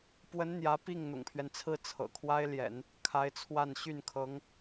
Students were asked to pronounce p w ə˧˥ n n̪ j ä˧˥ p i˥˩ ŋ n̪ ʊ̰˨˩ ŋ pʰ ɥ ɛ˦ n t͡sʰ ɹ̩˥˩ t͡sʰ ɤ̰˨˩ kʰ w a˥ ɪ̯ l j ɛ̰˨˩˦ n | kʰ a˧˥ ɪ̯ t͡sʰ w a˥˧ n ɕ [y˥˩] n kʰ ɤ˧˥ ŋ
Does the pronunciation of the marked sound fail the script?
no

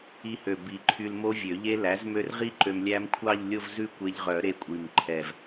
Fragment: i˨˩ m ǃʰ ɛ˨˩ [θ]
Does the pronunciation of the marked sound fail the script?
yes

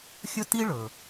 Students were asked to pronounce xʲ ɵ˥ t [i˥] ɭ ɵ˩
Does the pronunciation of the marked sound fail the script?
no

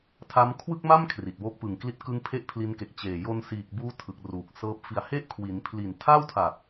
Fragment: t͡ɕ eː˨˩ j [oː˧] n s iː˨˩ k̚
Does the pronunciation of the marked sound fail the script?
yes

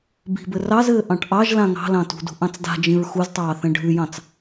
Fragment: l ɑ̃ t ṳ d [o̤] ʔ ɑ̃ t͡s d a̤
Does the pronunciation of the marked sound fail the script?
yes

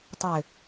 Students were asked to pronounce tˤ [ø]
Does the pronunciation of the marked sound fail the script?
no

